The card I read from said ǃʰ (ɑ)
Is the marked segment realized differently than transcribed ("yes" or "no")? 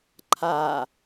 yes